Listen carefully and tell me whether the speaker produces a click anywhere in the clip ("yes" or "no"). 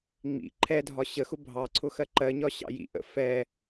yes